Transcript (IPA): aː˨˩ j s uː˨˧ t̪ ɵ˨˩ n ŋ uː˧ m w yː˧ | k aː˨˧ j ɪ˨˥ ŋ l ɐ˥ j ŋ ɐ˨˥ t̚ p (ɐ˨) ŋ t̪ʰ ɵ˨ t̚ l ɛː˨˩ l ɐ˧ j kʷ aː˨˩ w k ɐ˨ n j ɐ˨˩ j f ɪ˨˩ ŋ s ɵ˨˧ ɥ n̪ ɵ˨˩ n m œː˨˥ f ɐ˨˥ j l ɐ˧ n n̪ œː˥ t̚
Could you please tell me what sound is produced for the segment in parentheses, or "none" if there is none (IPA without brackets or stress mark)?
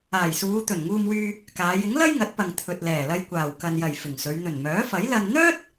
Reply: ɐ˨